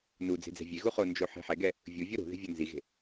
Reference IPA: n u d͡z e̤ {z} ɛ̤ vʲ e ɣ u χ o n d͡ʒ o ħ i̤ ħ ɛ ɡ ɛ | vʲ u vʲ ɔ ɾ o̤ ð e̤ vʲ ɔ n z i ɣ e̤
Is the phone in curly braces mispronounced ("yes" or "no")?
yes